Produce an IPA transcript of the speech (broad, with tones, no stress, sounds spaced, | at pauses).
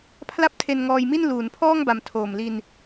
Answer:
pʰ l a˥˩ p̚ tʰ e˧ n ŋ ɔː˧ j m i˥˩ n l uː˩˦ n pʰ ɔː˥˩ ŋ b a˨˩ m tʰ oː˨˩ m l i˧ n